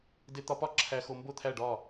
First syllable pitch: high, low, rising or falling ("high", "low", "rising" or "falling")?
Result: low